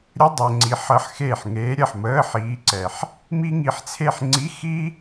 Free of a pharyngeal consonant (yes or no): no